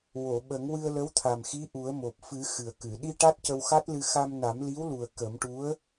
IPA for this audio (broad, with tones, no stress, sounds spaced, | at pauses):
w o˨˩˨ ɓ ə˨˩˦ ŋ w ɨ˧ ə̯ l ə˧˥ w t̪ʰ a˨˩ m x i˧˥ ʔ u˨˩˦ ə̯ m o˨˩ p̚ f ɨ˨˩˦ x ɨ˨˩ ə̯ k ɨ˨˩˨ ɗ i˧ ʈ a˦˥ t̚ c ə˧ w x a˦˥ t̚ l ɨ˧ x a˧ m n a˨˩˦ m l i˧˥ w l u˨˩ ə̯ k ə˨˩˦ m ʈ u˧˥ ə̯